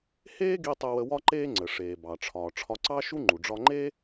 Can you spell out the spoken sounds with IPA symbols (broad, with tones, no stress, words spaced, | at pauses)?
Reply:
heː˥ɡi˧ tˤə˧wə˧wɒ˥ǃeː˥ ŋ͡ǀə˩ʂeː˩ bɑ˩ʈ͡ʂʰɒː˩ ʈ͡ʂʰɒ˧ǀɑ˥ʃu˥ŋ͡ǃu˩ ɖ͡ʐɒ˧ŋ͡ǃeː˥